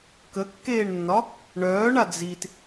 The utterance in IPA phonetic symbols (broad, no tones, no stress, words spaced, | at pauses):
kəkːeːɳnːɒ | ɳœːɳa d͡zit